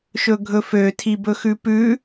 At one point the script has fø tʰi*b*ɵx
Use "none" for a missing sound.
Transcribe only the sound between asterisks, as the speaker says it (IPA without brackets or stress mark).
b